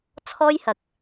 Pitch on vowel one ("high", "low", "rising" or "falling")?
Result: high